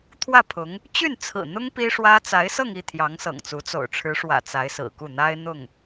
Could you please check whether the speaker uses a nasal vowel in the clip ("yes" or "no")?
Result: no